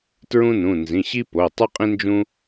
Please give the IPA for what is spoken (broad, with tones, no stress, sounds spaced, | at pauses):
t ɹ ũ˥ n ũ˩˧˩ n z ĩ˩˧˩ ɕ i˥ p o˩˧˩ tˤ ʉ˥ qʼ ĩ˥ n d͡ʒ ũ˥